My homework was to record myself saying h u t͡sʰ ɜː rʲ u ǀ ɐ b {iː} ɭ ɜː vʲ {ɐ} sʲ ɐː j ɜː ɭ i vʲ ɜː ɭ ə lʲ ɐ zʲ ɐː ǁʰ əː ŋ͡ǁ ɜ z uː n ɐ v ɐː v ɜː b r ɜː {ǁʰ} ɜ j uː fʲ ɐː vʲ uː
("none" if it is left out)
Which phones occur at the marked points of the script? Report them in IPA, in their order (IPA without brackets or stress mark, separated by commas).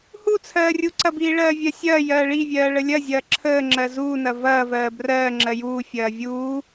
iː, ɐ, ŋ͡ǁ